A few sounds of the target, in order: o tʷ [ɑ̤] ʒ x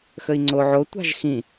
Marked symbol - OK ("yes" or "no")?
yes